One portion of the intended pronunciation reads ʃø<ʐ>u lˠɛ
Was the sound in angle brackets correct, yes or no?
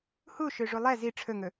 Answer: yes